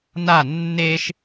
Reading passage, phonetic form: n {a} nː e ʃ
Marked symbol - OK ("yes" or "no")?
yes